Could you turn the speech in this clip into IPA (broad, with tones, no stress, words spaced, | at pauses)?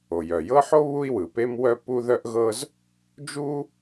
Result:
o˩jœ˩jɤ˥ħo˥ βu˥i̯wɯ˩pe˥mwœ˥ pu˥ðœ˥ʔɣɤ˥z | d͡ʒu˥